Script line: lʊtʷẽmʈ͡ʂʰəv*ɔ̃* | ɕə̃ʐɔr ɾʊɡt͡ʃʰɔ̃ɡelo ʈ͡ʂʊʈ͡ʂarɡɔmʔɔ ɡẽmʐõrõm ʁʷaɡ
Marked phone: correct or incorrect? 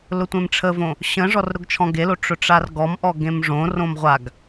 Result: incorrect: õ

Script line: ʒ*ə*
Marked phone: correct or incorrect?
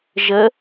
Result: correct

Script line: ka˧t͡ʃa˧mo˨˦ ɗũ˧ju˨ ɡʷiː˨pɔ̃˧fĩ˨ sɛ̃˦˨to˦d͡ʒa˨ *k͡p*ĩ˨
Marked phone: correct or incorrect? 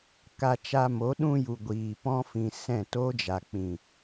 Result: correct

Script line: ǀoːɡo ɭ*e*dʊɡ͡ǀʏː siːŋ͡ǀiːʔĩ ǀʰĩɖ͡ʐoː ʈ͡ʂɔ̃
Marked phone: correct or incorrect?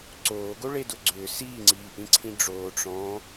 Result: correct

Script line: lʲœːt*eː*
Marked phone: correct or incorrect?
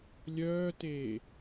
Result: correct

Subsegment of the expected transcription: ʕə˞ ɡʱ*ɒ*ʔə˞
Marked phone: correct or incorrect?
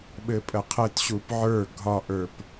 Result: correct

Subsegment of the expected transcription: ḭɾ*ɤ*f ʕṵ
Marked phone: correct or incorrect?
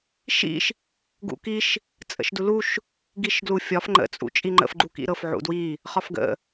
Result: correct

